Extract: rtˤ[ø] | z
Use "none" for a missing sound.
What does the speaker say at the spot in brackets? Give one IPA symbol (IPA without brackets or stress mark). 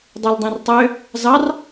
ø